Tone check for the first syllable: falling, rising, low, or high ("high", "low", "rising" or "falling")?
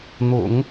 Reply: low